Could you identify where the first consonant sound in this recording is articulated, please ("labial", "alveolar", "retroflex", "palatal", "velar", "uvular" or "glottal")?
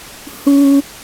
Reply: glottal